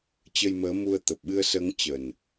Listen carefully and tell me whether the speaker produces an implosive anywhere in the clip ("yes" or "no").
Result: yes